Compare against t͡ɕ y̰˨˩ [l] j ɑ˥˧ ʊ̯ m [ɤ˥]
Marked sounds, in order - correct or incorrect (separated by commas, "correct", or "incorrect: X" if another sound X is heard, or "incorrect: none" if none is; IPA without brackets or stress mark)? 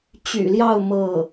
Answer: correct, incorrect: ɤ˥˩